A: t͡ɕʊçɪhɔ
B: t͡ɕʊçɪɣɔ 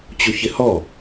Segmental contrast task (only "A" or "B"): A